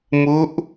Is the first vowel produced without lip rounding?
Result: no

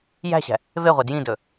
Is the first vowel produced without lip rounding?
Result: yes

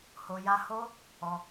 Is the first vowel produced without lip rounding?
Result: no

